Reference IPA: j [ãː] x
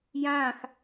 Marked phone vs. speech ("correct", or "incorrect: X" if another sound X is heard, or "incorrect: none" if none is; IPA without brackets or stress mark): correct